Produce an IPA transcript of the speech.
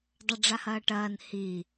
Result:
dˤ ɐ ɖ͡ʐ a h ɐː ʈ ɐː n h i

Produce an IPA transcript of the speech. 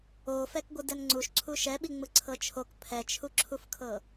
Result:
o f ɛ k ɡʷ ɯ d ɛ n ŋ͡ǀ u ʃ ǀʰ u ʃ ɛ ɓ i ŋ͡m ɯ ǀʰ ɤ t͡ʃʰ o k pʰ ɛ t͡ʃʰ u ǁʰ u f kʰ ɤ

